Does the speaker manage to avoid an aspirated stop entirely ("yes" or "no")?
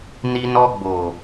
yes